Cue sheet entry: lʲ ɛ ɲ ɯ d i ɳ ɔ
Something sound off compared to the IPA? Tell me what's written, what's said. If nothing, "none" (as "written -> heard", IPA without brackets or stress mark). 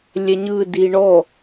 none